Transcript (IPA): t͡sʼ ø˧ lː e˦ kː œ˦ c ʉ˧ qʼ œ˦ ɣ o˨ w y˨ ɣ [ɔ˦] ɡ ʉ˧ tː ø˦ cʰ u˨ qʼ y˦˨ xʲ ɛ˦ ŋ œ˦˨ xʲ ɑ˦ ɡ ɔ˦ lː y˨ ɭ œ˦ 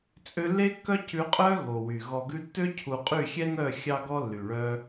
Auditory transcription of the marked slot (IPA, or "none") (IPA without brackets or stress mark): ɔ˨